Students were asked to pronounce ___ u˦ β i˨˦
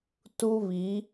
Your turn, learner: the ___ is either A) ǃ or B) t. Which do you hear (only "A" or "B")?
B